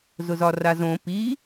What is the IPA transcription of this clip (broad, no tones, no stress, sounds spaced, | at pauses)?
z ʊ z ɒ r a z õ p i